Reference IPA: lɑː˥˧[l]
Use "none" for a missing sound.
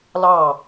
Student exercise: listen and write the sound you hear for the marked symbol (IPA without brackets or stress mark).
none